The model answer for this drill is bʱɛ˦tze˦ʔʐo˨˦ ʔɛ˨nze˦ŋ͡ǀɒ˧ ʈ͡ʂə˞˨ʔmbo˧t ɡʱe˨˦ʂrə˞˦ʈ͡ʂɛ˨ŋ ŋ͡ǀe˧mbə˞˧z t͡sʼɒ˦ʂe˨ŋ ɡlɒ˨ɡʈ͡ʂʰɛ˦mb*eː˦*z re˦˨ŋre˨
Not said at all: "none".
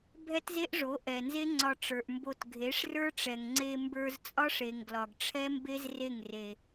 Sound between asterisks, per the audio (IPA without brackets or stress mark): e˦